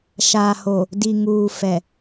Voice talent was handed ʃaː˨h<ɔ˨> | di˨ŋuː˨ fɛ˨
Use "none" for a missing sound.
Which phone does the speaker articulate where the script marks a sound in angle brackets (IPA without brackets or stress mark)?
o˨